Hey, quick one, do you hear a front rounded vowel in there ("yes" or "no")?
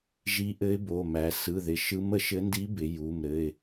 no